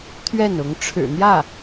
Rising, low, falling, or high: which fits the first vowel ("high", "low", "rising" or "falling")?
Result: falling